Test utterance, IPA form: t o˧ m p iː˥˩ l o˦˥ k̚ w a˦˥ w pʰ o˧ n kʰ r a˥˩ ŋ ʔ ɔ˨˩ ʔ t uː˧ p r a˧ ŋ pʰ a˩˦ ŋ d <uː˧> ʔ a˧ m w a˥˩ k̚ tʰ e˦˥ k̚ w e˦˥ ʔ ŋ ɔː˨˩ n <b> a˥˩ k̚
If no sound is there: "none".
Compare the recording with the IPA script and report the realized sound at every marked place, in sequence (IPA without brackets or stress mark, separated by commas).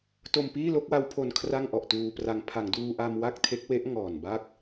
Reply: uː˧, b